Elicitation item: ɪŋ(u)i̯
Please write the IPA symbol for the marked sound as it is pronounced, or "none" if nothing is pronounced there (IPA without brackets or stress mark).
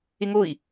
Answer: o